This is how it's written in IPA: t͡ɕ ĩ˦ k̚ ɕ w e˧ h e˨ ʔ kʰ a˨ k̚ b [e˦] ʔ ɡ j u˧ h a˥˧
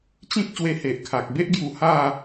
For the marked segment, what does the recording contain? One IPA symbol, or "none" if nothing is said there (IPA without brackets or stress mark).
e˦